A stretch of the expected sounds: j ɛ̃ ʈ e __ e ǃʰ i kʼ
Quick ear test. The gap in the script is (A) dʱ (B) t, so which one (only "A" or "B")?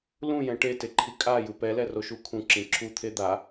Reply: B